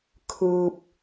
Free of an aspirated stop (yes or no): no